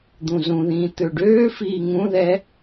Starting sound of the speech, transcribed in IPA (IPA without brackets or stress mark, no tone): d̪